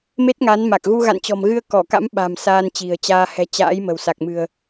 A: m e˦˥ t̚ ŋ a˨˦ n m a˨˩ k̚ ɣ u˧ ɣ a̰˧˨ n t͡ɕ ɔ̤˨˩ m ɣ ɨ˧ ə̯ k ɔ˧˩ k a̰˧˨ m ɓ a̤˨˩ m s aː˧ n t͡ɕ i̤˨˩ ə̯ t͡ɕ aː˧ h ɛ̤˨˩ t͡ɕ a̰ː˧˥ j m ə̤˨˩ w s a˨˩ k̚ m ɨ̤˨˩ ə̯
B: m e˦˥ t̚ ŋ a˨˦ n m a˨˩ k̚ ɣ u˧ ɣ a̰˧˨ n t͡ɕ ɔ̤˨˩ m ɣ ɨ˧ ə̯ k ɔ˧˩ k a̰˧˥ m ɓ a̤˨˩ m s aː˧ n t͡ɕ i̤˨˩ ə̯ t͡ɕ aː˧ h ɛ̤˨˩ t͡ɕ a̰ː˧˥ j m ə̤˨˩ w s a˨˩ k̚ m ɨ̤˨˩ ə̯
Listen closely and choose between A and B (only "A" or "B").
B